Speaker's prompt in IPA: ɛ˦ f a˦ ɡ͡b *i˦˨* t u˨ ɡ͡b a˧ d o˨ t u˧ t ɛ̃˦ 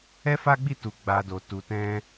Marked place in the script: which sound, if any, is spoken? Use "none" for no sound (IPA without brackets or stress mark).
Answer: i˦˨